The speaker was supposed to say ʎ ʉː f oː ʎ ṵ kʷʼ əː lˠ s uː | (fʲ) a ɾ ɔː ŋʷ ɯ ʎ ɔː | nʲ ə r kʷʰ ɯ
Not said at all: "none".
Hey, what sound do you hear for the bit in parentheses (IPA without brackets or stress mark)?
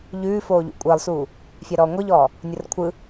fʲ